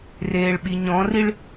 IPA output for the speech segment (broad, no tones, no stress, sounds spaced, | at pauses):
r eː ɭ ɓ i ɲ ɔ̃ r i ɭ